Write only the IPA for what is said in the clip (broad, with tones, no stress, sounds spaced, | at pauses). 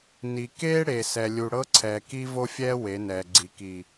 n i˨ k eː˦ ɽ e˨ s ɛ˨ lʲ u˨ ɽ ɤ˦ ǀʰ ɛː˨ k i˦ v o˦ fʲ ɛː˦ w e˨˦ n ɛː˨ ɡ͡ǀ i˨ k i˨